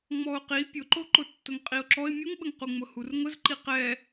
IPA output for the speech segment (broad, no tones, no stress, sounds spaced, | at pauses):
ŋ͡m ɔ ʊ̯ q i pʲ ʊ ǃ o ǃ ʊ tː ʊ ŋ qʼ i ʊ̯ ǁ ɔ ɪ̯ mʲ u ŋ ɓ ə ŋ q u ŋ͡m ʊ h u r ŋ ʊ z ǃ i q ɛ